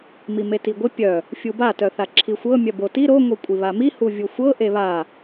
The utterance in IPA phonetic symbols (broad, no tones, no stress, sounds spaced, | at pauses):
m i m e t i ɡʷ ɪ pʲ œ | fʲ u b a t œ θ a ǁʰ i xʷ ɤ mʲ œ b o t i ɾ o ŋʷ i kʷʼ i β a m i h u vʲ u xʷ ɤ ʔ e β a